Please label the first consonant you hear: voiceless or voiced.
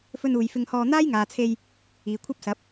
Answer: voiceless